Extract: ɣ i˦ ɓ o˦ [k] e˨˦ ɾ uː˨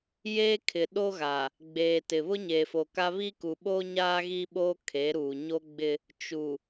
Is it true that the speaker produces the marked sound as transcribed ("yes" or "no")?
no